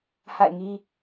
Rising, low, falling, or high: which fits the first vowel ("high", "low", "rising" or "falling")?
falling